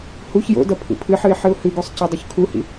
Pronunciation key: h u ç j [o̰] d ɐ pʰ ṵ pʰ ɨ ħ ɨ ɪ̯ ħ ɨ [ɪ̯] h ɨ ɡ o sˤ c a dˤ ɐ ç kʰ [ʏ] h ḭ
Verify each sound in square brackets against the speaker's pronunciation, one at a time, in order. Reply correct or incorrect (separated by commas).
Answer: correct, incorrect, incorrect